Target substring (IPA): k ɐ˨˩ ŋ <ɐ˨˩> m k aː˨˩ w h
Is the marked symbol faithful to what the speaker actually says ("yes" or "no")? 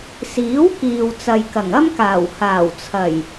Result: no